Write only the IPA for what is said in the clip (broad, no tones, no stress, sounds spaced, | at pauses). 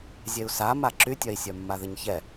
zʲ e u̯ s a m a ǁ y tʲ œ i̯ sʲ œ mː a ð ə ɲ ç ɛ